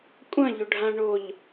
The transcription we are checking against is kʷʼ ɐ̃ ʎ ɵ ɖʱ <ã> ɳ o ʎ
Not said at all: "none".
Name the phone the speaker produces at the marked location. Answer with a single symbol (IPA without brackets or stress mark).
ã